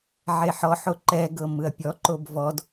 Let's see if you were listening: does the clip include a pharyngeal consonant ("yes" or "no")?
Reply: yes